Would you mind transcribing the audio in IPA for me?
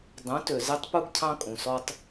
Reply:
dˤ ũ˨˦ t ø˨ z ɛ˦ tˤ p u˦ ɡ cʰ ɑ̃˦ kʼ ũ˨ s ɔ˦ tˤ

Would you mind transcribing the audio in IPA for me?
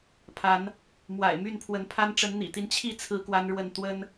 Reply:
pʰ a˨˦ n | m w a̰˨˩ ɪ̯ m y˥˨ n pʰ w ə˨˦ n pʰ a˦ n ʈ͡ʂ ə˨˦ n n̪ ḭ˨˩ t̪ i˦ n t͡ɕʰ i˥˨ t͡sʰ ɹ̩˦ k w a˦ n ɻ w ə˥˨ n t̪ w ə˦ n

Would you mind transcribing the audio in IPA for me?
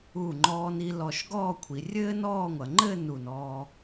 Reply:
u˧˩ ŋ͡ǃ ɔː˧ n i˧ l ɔ˧˩ ʃ ɡ ɔː˥˧ kʷʰ i˩˧ rʲ ɘː˥ n ɔː˥˧ ŋʷ ɐ˩˧ ŋ͡ǃ ɘː˥˧ n u˧˩ n ɔː˧

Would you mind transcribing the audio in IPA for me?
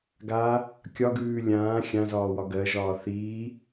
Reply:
ɡ a | kʲ ɒ ɡ ʉː lʲ ãː xʲ ã z ɒː w ɒ ɡ ɜ ʒ ɒː θ iː

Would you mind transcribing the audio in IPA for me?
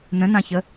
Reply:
n ə̃ n ã ç ə

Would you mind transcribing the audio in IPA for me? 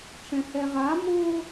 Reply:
ʈ͡ʂ ɛ̃ h ɛ ʁ a m o

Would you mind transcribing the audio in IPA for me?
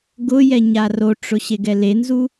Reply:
ɡ ʊ j ɛ ɲ a r o ʈ͡ʂ ʊ ɕ e ɡ ɛ l e n z u

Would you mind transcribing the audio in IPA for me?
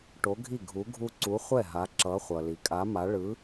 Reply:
ʈ o˨˥ ɡʱ i˥˩ ɡʱ u˨˥ ɡʱ u˦ ǀ u˨˥ χʷ ɛ˥˩ ɦ a˨˥ ǁ ʌ˨˥ χʷ ʌ˨ l i˨ kʼ a˨˥ m a˨˥ ɭ ɯ˨˥

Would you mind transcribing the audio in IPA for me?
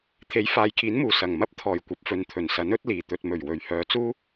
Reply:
t̪ʰ e˨˥ j f aː˨ j kʰ iː˨˥ n m uː˨˩ s ɐ˨˩ ŋ m ɐ˥ p̚ t̪ʰ ɔː˨˩ j kʷ ɐ˨ p̚ f ɵ˨ n t̪ʰ ɵ˨˩ n s ɐ˨˥ n ɵ˨˥ t̚ l iː˨˩ t̪ ɵ˨ t̚ m ɵ˨˩ ɥ w ɵ˨ ɥ h œː˨˧ t͡s uː˥

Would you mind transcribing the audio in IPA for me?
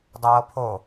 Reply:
dˤ ɛ w ɤ pʰ o

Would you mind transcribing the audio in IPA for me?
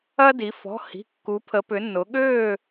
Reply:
ɐ˦ d i˩˧ f ɔ̤˩˧˩ h i̤˩˧˩ kː u˩˧ pʰ ə˩˧ p ʏ˩˧ nː ʊ˩˧ ɠ øː˥˨

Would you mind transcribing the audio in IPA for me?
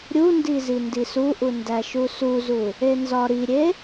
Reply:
ɾʲ u n d i z i n d i s u ʔ u n d æ ʃ u s u z u | e n z ɒ ɾ i ɾʲ e

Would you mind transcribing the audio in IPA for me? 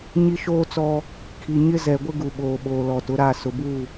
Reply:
ɲ i˦ ʃ oː˦ t͡s ɔ˦ | kʰ i˨ ɲ ɪ˦ z ɛ˨ ɡʷ ɪ˦ ɡ u˨ ɓ oː˨ ɓ oː˨ l ɔ˨ t ʊ˨˦ ɾ a˦˨ s ʊ˨ b u˦˨

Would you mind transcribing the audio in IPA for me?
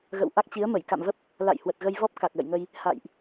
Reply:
ɣ ə̰˧˨ w ʔ a˦˥ k̚ t͡ɕ i˨˦ ə̯ m ə˧˩ j k a̰˧˨ m v ə˦˥ p̚ | l a̰˧˨ j h w ə˨˩ t̚ ɣ ə˧ j v ɔ˦˥ p̚ k a˨˩ k̚ l ə̰˧˨ j ŋ ə˧ j | h a̰˧˨ j ʔ

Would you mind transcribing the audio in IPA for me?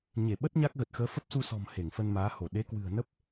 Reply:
ɲ e˧˩ ɓ ə˦˥ t̚ ɲ a˦˥ k̚ ɣ ə˨˩ t̚ x əː˨˦ f ə˦˥ p̚ s u˧ s ɔ̤˨˩ m h e˧˩ ŋ f ə˧ n m aː˨˦ h o˧˩ ɗ e˨˦ k w ɨ̤˨˩ ə̯ n ə˦˥ p̚

